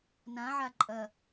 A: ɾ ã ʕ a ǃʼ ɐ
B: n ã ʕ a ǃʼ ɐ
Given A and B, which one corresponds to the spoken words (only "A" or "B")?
B